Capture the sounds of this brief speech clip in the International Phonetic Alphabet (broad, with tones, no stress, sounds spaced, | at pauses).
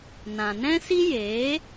n ã˨ n ɛ̃˦ s i˦ j eː˨˦